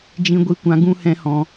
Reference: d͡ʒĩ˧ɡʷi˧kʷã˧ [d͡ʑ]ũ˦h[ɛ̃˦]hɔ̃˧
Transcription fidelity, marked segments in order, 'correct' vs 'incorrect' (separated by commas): incorrect, correct